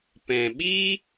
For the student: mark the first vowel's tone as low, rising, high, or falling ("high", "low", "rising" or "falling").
low